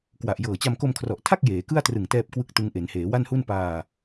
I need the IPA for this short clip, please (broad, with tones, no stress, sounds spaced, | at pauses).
k w a˨˩ ʔ j ɤː˨˩ t͡ɕ a˧ m k o˧ m kʰ r ɔ˨˩ ʔ tʰ a˥˩ k̚ j eː˩˦ k ɯ˥˩ a̯ t r ɯ˨˩ ŋ t ɛː˥˩ p̚ k w ɯ˥˩ k̚ t ɯ˦˥ ŋ ʔ e˩˦ n h eː˩˦ w a˥˩ n h u˥˩ n p aː˧